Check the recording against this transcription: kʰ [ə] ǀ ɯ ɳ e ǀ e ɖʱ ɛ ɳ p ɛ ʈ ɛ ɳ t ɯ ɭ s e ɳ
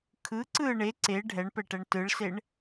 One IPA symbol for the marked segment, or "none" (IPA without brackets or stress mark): ɯ